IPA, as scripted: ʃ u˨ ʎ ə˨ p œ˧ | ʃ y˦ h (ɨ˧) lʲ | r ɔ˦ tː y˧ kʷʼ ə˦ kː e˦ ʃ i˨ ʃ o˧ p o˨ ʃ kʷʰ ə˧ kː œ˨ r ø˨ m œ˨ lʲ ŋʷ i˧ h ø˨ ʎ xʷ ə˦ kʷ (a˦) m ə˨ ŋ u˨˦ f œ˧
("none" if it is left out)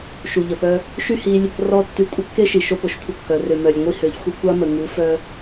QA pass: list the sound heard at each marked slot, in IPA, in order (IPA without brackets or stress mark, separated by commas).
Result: i˧, a˦